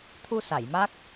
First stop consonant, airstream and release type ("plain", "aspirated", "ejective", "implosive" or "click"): aspirated